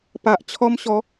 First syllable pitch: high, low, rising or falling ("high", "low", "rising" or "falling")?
low